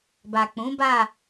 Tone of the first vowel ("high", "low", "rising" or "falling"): low